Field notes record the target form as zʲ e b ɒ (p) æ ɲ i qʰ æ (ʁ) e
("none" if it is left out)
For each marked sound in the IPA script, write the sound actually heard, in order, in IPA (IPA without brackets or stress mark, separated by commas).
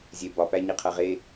p, ʁ